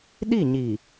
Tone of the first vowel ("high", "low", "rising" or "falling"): falling